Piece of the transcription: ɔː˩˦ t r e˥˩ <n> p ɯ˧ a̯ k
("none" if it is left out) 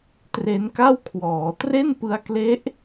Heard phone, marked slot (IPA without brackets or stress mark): n